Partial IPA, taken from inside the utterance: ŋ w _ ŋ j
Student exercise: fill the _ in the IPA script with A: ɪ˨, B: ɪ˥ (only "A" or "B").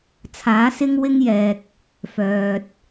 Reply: B